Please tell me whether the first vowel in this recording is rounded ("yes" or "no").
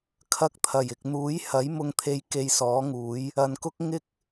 no